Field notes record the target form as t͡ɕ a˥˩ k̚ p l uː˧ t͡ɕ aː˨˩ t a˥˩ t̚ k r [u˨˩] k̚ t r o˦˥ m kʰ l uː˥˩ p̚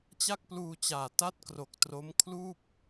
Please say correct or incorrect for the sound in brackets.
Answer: incorrect